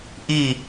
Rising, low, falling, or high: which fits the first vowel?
falling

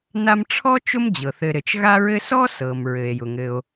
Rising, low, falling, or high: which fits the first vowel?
high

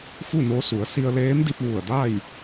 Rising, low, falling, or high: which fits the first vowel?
falling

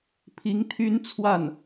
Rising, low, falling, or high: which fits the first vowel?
rising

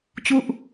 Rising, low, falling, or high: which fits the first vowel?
falling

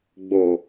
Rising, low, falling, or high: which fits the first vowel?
low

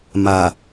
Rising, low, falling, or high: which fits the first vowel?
low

